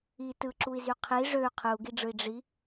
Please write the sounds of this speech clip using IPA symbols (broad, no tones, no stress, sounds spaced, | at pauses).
i t ɯ ǁ u i̯ z y qʰ i ʐ ø y̯ qʰ ɯ u̯ ɡ i ɖ͡ʐ ɯ i̯ ɖ͡ʐ i